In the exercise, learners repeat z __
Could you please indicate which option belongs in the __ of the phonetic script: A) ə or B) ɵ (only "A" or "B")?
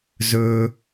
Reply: B